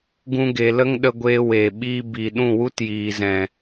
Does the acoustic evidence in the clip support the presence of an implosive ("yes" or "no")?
yes